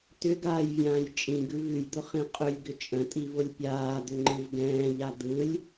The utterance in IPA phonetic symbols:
t ʏ ɡ aː j vʲ ãː j t͡ʃʼ ĩ ɡ ʉ v ʉ j d̪ ʊ χ ĩ qʼ ʏ lʲ ɡ ʏ t͡ʃʼ ə̃ tʼ i v ʊ lʲ pʲ aː d̪ ʏ ŋ͡ǃ ɯ v ɡ ɛ̃ː ʎ a d̪ ɯ lʲ

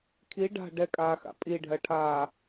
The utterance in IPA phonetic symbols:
kʰ i ɖ a̤ ɖ ɛ kʼ aː x a̰ pʼ i ɖʱ ɜ ʈʰ aː

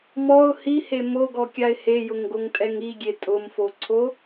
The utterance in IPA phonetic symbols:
m ɔ ʊ̯ h i h e m o ɡ ɔ kʲ a ɪ̯ h e j ʊ ŋ ɡ o ŋ tʼ ɛ ŋ i ɡʲ e tʼ ʊ m f o ǀʰ o

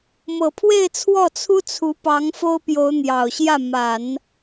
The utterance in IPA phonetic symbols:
m ɤ˨˩ pʰ w e˥˧ ɪ̯ t͡sʰ w ɔ˥˩ t͡sʰ u˥ t͡sʰ u˧˥ p ɑ˧˥ ŋ f o˥ ʊ̯ p j o˧˥ ʊ̯ n̪ j ɑ˨˩ ʊ̯ ɕ j ä˥˩ m a˨˩˦ n

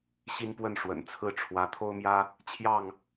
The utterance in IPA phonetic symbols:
ɕ i˦ n p w ə˥˨ n ʂ w ə̰˨˩ n t͡sʰ ɹ̩˥˨ ʈ͡ʂʰ w ä˨˦ t̪ʰ o˦ ʊ̯ m j ä˦ | t͡ɕʰ j ɑ˥˨ ŋ

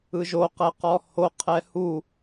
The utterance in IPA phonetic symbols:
ɯ ʒ o q ɛ q ɔ h o qʰ ɛ h u

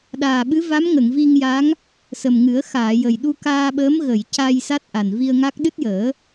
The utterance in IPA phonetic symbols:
ɗ aː˨˩ ɓ ɨ˧˥ v a˧˥ m ŋ ə˨˩˨ ŋ v i˧ ŋ j a˧˥ ŋ | s ə˨˩ m ŋ ɨ˨˩˦ ə̯ x aː˨˩˨ j ə˨˩ j ɗ u˧ k aː˧ ɓ əː˧˥ m ɣ ə˨˩˨ j c a˧ j s a˦˥ t̚ ʔ a˨˩ n v i˧ ə̯ ŋ a˦˥ k̚ ɗ ɨ˦˥ t̚ j əː˨˩˦

